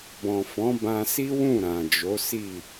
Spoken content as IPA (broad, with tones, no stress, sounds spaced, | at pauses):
b ɔ̃˨ f ɔ̃˨˦ b ã˧ s i˦ w ũ˦˨ ɾ ã˨ d͡ʒ o˨˦ s i˦˨